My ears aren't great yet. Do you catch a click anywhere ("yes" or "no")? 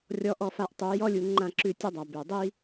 yes